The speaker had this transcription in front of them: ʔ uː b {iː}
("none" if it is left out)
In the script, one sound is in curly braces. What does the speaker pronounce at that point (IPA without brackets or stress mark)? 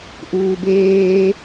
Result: eː